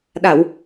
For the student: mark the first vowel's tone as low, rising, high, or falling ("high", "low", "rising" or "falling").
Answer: low